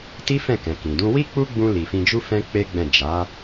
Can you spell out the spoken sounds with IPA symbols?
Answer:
t i˦ f ɛ̃˦˨ k ɛ̃˨ k ĩ˨ d ũ˧ w i˦ k͡p u˦ ɡ͡b ũ˧ l i˨ f ĩ˧ d͡ʒ u˦ f ɛ̃˦ k͡p e˦ ɡ͡b ɛ̃˦˨ d͡ʒ a˨˦

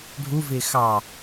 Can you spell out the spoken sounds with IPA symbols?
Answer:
ɖʱ u v ɪː x ɑ

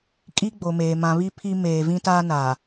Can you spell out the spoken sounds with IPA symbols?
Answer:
kʼ i˦ ɡ͡b o˨ m eː˨ m ã˨ β i˦ pʰ i˦ m eː˨ v ĩ˦ t aː˦ n a˨

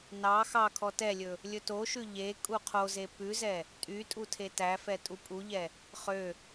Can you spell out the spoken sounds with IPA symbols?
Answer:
n ɑ x ɑ kʰ ɔ t ɛ lʲ ɵ | lʲ ɵ t o ʃ ʉ ʎ e kʼ u qʰ o z e p ʉ z ɛ | tʼ y tʼ u tʰ e t æ f ɛ tʼ u pʼ u ʎ ɛ | χ ø

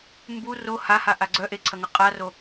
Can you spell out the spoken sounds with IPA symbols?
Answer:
m b u r o h a h a ʔ a ɡ͡ǀ œ ʔ e ǀʰ ɐ ŋ ɐ qʼ a r o

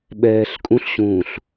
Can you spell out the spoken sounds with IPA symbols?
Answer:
ɓ ɛː ɬ kʼ ũ ɬ ɕ ũː ɬ

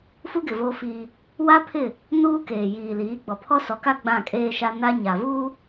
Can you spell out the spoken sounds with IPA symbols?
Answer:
f u˦ ɡ ɪ˨ v oː˦ f iː˦ | w a˦ pʰ ɪ˦˨ | n uː˦ k eː˨ j iː˨ l iː˨˦ ɡ͡b ɔ˨ pʰ ɔ˦ s ɔ˨˦ k a˦ ɡ͡b ã˦˨ kʼ eː˦ ʃ a˦ n a˦ ɲ a˨ v uː˦

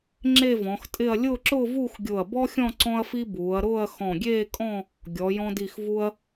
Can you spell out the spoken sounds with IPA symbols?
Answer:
ŋ͡ǁ e˥˧ v ɔ̃˩˧ x tʼ ɪ˥˧ ɐ̯ lʲ ʊː˥˧ ǁ ʊː˥˧ v uː˥˧ x ɡʲ ʊː˧˩ ɐ̯ b ɔ˥ xʲ ɔ̃˥˧ ǀ ɔ̃˥ ɐ̯ f i˥ b uː˩˧ ɐ̯ ɾ ʊː˥˧ ɐ̯ x ɔ̃˧˩ ɡʲ eː˥˧ kʼ ɔ̃˥˧ | ɡʲ ɔ˩˧ j ɔ̃˧ d i˧˩ x v u˧ ɐ̯

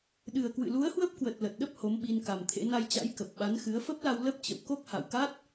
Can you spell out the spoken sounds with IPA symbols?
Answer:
ɗ ɨ˨˩ ə̯ k w ɨ̰˧˨ l u˨˦ ə̯ h w ə˦˥ p̚ k w ə˨˩ t̚ l ə˨˩ t̚ ɗ ə˦˥ p̚ h o˨˦ m ɓ i˧ n k a˨˩ m t̪ʰ ḛ˧˥ n a˧ j t͡ɕ a̰˧˥ j k ə˨˩ p̚ ɓ a˨˦ n x ɨ˨˦ ə̯ f ə˦˥ p̚ l a˧ w l ə˦˥ p̚ t͡ɕ ə̰˧˨ w k o˦˥ k̚ h a̰˧˨ w k a˦˥ t̚

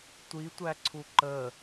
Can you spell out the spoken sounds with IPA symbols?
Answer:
tʷ i tʷ æ ǀʰ u ǃ ə

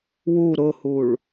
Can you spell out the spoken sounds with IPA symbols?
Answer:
w u ɾ ʊ h u ɭ

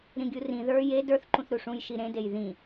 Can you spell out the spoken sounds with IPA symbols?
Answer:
ɾ ĩ ɡʲ u r ĩ ð ə˞ j e d ə˞ θ ǃ ũ θ ɾ u ʂ ũ j ʃ i ɾ ẽ d e j ð ĩ

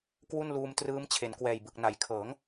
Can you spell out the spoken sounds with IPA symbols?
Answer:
k w u˥˩ n l uː˧ m t r ɯː˦˥ m t͡ɕʰ e˩˦ n k w ɛː˨˩ j b ɯ˨˩ k̚ n a˩˦ j kʰ ɤː˩˦ ŋ

